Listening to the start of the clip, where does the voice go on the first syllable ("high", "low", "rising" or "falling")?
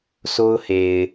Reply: high